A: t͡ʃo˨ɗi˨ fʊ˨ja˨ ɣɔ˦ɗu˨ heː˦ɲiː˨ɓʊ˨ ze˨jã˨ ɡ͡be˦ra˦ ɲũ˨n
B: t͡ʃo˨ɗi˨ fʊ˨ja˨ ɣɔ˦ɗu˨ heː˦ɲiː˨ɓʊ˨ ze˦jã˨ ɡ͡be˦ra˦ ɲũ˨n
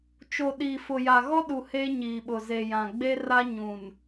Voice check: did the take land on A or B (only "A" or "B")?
A